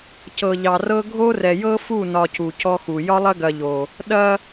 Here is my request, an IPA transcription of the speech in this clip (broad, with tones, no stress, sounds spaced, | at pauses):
c ɤ˨ ʎ ɑ˨ r ɤ˦ ɡʱ o˦ r ɛ˨ j ɤ˦ f u˦˨ n ɒ˨ c u˨ c ɔ˦ x u˨ j ɒ˦ lˠ ɐ˦ ɡ ɐ˨ ʎ o˨ | ɗ ɐ˦